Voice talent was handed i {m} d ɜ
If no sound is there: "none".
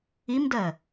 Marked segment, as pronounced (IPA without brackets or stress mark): m